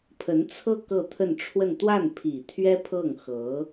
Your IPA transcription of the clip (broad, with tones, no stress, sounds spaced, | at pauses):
pʰ ə˧˥ n t͡sʰ ɤ˥˧ k ɤ˥˧ t̪ʰ ə˥˧ n ʈ͡ʂʰ w ə˥˧ n t̪ w a˥˩ n pʰ i˨˩ t̪ʰ ɥ ɛ˥ pʰ ɤ˥˩ ŋ x ɤ˧˥